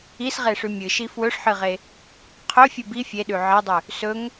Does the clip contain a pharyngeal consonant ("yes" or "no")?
yes